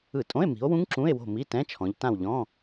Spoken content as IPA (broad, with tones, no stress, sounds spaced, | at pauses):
ɯ˧˩˧ tʼ õ˧˥˧ e̯ m i̤˨˦ o̯ w ũ˦˥ ŋ ǁ ũ˧˥˧ e̯ w o̤˦˨ m i˧˥˧ t ɛ̃˧˥˧ t͡ʃʰ ɔ̃˨˦ ʎ t ã˦˨ w ʎ ɔ̃˧˥˧